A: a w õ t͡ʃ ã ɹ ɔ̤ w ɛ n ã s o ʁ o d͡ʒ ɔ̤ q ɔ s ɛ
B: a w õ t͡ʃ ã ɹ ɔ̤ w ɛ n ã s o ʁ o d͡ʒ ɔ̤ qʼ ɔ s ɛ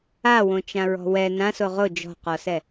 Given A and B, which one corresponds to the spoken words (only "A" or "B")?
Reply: A